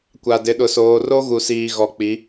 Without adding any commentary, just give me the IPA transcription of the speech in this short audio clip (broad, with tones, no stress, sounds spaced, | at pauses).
kʷ a˨ d ɪ˨˦ ɗ ʊ˨ s oː˨ r o˦ ɣ u˨ s iː˨ ɣ ɔ˨ k͡p i˨˦